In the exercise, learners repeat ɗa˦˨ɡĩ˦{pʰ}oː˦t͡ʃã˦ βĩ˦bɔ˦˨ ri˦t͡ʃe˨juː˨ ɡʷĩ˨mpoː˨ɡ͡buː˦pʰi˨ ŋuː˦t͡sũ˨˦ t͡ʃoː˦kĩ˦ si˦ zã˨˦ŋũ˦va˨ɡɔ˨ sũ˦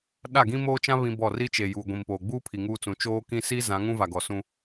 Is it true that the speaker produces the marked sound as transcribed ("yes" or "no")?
no